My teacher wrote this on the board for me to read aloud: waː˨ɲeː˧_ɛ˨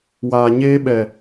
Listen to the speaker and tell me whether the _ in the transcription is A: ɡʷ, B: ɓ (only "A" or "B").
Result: B